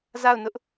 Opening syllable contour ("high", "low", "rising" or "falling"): falling